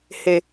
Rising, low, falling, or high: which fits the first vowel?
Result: low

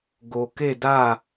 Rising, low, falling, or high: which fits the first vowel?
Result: low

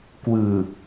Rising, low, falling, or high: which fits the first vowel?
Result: low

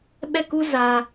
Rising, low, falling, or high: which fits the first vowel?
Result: falling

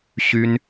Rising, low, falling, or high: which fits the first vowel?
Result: high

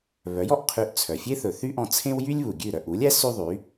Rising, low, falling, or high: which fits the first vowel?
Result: rising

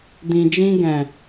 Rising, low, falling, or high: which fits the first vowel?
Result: low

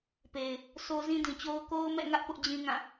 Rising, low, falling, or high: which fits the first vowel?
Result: low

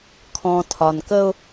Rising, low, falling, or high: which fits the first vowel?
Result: low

